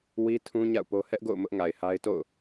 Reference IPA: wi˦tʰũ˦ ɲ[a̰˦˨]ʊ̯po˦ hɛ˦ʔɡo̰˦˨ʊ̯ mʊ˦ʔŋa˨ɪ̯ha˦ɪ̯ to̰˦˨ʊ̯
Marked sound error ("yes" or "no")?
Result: no